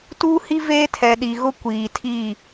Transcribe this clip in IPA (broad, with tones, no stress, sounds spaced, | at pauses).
t u˦ h i˦ v eː˦ tʰ ɛ˨ ɗ i˨ ɣ ʊ˦ kʷ iː˨ tʰ iː˦˨